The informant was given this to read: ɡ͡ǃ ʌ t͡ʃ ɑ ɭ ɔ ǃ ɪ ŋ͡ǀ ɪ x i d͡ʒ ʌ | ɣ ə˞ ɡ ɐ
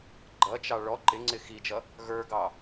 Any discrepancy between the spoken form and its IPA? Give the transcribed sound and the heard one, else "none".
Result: ɐ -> ɑ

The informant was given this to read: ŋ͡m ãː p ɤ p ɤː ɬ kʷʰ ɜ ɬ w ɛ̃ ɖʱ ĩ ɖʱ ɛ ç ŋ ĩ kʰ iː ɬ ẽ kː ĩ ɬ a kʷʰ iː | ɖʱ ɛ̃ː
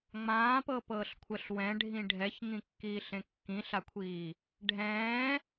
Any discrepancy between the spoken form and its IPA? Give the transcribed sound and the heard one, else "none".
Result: kʰ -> kː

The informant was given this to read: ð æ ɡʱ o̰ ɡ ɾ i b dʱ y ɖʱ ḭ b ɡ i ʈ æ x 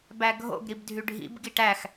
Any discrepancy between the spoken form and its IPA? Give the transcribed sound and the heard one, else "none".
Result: ð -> b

